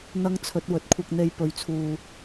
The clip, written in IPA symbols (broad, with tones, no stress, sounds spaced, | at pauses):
n̪ ɐ˥ ŋ t͡sʰ ɵ˨˥ t̚ w ɵ˨˥ t̚ kʷʰ ɐ˧ k̚ n̪ e˧ j p ɵ˨ ɥ t͡sʰ uː˨